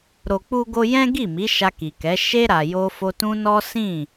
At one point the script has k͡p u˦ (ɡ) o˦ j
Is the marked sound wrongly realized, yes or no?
no